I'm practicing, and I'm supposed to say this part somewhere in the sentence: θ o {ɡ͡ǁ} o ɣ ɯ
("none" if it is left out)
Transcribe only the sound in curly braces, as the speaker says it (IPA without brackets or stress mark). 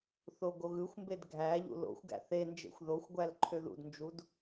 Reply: ɡ